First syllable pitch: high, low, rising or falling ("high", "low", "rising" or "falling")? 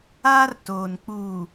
high